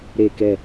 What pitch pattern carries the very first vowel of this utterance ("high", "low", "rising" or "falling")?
falling